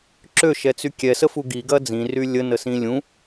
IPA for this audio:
ǁ ø ʃ ɛ t͡s y kʲ ɛ s ə f u ɡ i ɡ ɐ d͡z ĩ r y lʲ ə n ə s ĩ lʲ ũ

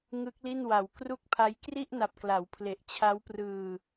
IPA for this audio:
ŋ ɯ˦˥ k̚ l i˥˩ n w a˨˩ w k r u˥˩ k̚ pʰ a˦˥ j k r i˥˩ ʔ n a˨˩ p̚ k l a˩˦ w pʰ l e˨˩ ʔ t͡ɕʰ a˦˥ w p r ɯː˧

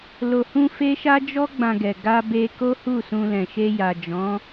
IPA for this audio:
l o˨ h ũ˧ f e˦ ʃ a˦ d͡ʒ ɔ˦ ɡ͡b ã˧ ɡ ɛ˨ ɡ a˧ b e˧ k o˦ h u˦˨ s ũ˧ l ɛ̃˨ ʃ e˧ j a˨ d͡ʒ ɔ̃˨˦

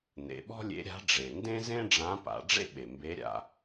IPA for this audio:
n̪ ḛ˩˧ ɓ ɔ̤˥ lʲ ḛ˧˥ ɾʲ a̤˧˥ ɖ͡ʐ e˩ n d ẽ˥ z ẽ˥ ɖ͡ʐ ã˧˥ p a̰˩˧ ɖ͡ʐ ḛ˥ ɓ e˩ m b e˧˥ ɾʲ a̰˧

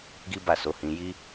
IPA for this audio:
ɡ i˦ b a˦˨ s o˨˦ h ĩ˧ j i˦

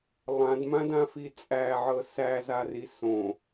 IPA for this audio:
lˠ ã d m ã d ã f i t͡sʼ æ ʕ ɤ s æ z a r i s õ

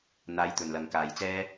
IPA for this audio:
n̪ aː˨˥ j t̪ ɵ˨˩ n l ɐ˨˩ ŋ k aː˨˩ j t͡s ɛː˥

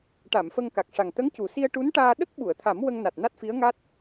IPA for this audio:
ʈ a˨˩˨ m f ə˧ ŋ k a˨˩ k̚ ʂ a˨˩ ŋ t̪ ə˧˥ ŋ c u˨˩ s i˧ ə̯ ʈ u˧˥ n ʈ aː˧ ɗ ə˦˥ k̚ ɓ u˨˩˨ ə̯ t̪ʰ a˨˩˦ m w ə˧ ŋ n a˨˩ t̚ n a˦˥ t̚ f i˧˥ ə̯ ŋ a˦˥ t̚

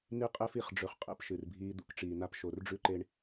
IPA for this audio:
n i˦ qʼ e˦ f i˨ χ ɖ͡ʐ ɵ˨ χ qʼ ḛ˦ p ʃ ɨ˨ r bʱ iː˦ d̪ ṵ˦ k ʈ͡ʂ iː˨ n a˦ p ʃ o˨ r ɖ͡ʐ ʉ˦ ǃ e˦ ɳ

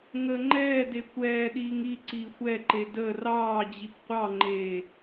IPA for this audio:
ŋ əː ŋ͡ǃ ɛː d e kʷ ɛː ɗ iː ŋ i ǀ iː xʷ ɛ ǃ e d əː r ɑː d͡ʑ i p qʷ ɑ ŋ͡ǃ eː

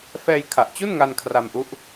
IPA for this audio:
f ɛː˧ j kʰ a˨˩ ʔ t͡ɕ u˥˩ n ŋ a˧ n kʰ r a˧ m ʔ u˦˥ ʔ

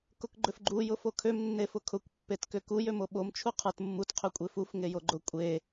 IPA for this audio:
k ʊ k ɡ͡ǃ ʏ f ɡ͡ǃ u j ʊ f o kʰ ø m nː e f ʊ kʰ ʊ kʷ pː e t k ʏ k u j ø m o ɓ o m t͡ʃʰ u qʰ ə˞ t mː u t qʰ ø kʷʼ e f u f ŋ e j o ɡ͡ǃ ʊ kʷʼ e

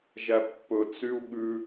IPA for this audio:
ʒ æ pː ɵ t͡s y u̯ ɠ ʉ

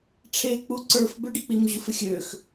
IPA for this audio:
ʈ͡ʂʰ e k͡p u ǀ ə˞ f b ʏ ɖ ɪ k͡p i m ʑ u f ɪ xʲ ø x

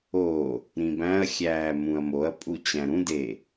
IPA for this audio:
o | ɾ ĩ b æ̃ ɐ̯ xʲ æː m ũ ɐ̯ m o ɐ̯ pʼ u t͡ɕ æ̃ ɾ ũ d e

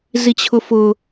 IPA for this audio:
z i t͡ɕʰ ʊ f ʊ

